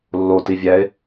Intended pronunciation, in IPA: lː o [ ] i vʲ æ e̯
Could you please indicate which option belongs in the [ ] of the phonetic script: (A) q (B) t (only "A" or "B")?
B